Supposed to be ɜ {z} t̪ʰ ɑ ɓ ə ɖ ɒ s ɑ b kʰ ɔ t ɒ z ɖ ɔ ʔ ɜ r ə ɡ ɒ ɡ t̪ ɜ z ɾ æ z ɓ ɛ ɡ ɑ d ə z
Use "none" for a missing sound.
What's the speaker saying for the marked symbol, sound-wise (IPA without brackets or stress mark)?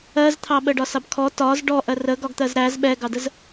z